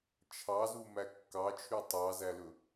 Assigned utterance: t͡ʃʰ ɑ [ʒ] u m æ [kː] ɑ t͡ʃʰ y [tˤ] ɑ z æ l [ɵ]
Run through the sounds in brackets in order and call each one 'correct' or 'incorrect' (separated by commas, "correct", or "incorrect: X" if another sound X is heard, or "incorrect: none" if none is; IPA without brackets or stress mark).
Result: incorrect: z, correct, correct, correct